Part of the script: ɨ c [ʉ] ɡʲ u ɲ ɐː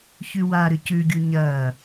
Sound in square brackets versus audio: correct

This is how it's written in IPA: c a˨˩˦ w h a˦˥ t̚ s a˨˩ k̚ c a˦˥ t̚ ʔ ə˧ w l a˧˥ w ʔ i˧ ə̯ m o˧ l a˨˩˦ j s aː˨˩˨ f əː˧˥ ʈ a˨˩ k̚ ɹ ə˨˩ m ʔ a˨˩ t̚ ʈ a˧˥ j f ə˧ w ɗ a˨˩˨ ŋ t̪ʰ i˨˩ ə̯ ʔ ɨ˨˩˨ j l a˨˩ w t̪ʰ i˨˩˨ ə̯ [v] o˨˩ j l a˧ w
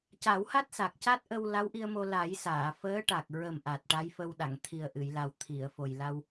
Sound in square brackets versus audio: incorrect: f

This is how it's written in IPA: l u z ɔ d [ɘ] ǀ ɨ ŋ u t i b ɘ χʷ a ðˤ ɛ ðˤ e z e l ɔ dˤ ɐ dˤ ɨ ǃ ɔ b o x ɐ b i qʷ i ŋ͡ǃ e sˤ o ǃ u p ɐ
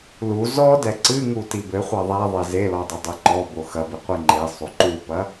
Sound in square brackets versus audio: incorrect: ɛ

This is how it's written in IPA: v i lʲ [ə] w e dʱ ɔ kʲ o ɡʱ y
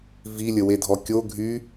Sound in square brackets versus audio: correct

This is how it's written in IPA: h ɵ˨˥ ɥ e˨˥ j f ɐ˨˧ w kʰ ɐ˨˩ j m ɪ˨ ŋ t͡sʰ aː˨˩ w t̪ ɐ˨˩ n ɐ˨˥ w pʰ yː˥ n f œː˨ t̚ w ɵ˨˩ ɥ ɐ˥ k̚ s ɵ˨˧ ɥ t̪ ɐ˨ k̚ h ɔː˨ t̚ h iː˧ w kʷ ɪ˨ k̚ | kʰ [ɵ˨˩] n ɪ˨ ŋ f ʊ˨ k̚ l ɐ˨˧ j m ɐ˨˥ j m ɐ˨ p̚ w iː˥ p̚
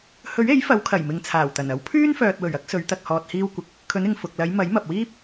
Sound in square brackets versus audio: incorrect: ɵ˨˧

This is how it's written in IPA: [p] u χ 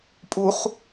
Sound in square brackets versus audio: incorrect: pʼ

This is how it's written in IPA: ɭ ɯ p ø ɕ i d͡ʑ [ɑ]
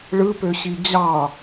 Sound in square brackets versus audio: correct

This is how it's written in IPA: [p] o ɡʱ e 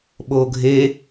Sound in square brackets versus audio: incorrect: ɓ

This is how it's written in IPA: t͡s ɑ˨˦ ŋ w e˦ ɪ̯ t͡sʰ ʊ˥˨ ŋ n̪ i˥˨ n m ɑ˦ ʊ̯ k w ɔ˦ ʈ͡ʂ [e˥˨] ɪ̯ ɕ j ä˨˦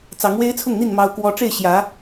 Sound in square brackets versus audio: correct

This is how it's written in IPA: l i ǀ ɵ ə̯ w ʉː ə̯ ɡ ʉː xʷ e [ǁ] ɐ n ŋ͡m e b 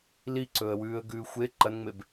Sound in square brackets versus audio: incorrect: ǃ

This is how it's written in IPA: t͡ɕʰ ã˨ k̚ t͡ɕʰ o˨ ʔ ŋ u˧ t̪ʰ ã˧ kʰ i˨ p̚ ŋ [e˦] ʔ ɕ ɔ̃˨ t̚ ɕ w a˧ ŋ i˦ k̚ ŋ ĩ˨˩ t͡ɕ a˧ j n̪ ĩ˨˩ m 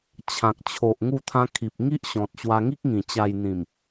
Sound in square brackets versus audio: incorrect: i˦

